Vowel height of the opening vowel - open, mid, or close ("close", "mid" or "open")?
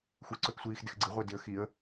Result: close